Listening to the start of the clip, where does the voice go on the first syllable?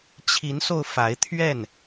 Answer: rising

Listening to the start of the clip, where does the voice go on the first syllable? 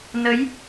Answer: rising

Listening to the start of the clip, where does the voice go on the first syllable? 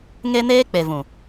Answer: high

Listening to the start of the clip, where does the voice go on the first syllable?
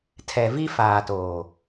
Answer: low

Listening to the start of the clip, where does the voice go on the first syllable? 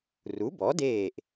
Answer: rising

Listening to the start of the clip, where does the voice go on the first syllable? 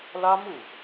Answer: high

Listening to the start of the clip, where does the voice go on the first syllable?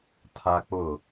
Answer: high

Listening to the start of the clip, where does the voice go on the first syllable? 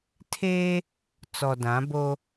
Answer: high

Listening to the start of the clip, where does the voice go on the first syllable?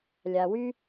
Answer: low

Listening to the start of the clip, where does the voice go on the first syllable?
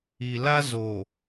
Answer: low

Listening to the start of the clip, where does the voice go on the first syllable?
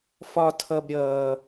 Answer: high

